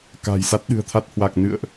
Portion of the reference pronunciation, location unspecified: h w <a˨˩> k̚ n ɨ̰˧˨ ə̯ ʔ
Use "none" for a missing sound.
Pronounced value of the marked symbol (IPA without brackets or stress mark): a˨˩